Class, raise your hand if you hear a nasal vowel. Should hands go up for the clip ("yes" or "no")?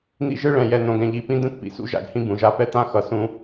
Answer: yes